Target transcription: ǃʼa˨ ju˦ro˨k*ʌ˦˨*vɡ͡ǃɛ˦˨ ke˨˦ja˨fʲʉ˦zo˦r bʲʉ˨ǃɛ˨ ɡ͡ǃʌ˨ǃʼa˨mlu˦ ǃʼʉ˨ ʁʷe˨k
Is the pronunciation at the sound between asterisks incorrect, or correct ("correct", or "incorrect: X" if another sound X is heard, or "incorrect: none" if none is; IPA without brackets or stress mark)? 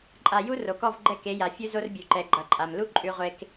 incorrect: ɔ˦˨